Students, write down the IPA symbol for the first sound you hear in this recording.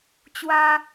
t͡ɕ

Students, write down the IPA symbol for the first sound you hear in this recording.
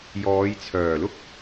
j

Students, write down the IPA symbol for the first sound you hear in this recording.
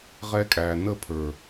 ʁ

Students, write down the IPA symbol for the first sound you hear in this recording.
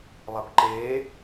lˠ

